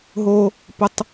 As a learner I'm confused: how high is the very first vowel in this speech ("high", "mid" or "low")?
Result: mid